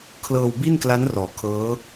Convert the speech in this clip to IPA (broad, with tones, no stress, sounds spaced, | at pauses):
kʰ l ɤː˧ w b i˥˩ n k l a˦˥ n r ɔː˩˦ kʰ ɤː˦˥